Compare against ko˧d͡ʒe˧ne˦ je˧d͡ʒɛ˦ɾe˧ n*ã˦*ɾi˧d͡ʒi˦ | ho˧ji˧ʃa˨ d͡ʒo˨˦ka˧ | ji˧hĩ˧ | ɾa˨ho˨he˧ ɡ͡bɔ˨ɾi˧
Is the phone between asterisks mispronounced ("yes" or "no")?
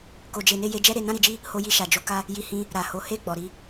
no